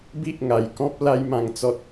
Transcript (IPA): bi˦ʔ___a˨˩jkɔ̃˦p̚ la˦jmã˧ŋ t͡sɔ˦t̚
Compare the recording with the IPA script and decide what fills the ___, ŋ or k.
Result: ŋ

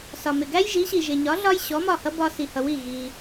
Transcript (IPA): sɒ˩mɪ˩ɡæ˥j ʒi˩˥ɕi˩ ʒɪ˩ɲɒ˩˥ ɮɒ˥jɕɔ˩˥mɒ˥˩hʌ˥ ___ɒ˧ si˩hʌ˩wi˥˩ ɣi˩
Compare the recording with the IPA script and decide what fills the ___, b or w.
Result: b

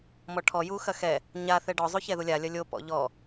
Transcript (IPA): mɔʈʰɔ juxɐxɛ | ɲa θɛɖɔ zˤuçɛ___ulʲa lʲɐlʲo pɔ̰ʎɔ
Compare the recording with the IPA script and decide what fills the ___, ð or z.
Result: ð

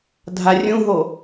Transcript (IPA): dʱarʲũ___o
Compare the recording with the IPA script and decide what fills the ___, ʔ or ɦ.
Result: ɦ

